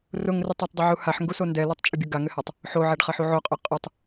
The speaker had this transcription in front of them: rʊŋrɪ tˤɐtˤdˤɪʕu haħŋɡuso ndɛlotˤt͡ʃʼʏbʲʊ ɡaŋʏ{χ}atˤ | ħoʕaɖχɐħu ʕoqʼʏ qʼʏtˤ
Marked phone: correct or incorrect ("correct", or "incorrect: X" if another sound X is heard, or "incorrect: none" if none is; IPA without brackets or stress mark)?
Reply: incorrect: h